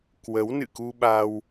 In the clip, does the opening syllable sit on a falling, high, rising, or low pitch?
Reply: rising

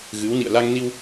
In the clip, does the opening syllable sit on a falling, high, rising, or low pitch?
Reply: rising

